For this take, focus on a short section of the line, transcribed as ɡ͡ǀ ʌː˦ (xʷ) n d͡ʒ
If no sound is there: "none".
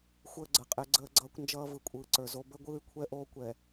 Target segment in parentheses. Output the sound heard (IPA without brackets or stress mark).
kʷ